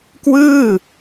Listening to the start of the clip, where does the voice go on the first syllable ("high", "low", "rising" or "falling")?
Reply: falling